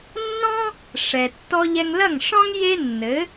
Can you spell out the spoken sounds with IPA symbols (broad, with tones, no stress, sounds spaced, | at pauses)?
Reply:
nː ɔ̃˥ | ʂ ɛ˩ tː ɔ˧ ʎ ɛ˧ ŋ l ɐ˥˩ ŋ ʂ ɔ̃˥ ŋ j e˥ nː ɘ˩˥